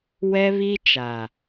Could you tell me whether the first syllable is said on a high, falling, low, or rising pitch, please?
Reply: high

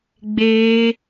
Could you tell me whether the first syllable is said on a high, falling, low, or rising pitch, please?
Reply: low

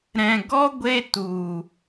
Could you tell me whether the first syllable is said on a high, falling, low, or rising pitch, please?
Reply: low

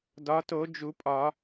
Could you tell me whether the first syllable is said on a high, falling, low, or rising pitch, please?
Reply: rising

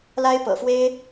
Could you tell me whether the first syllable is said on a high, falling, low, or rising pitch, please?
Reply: high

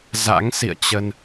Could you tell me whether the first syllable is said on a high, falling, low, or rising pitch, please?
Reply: rising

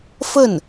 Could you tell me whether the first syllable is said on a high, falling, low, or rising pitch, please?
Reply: falling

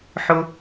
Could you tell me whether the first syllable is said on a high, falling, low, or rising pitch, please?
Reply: low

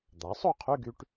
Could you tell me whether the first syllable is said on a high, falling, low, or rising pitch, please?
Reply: rising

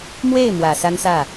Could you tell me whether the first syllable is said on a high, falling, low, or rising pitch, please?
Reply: falling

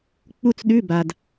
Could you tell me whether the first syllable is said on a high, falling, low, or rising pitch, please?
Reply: falling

